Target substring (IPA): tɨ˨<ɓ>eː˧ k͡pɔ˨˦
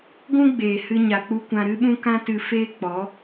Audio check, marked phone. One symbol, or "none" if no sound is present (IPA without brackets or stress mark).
f